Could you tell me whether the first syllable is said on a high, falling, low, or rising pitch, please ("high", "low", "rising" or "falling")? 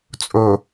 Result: low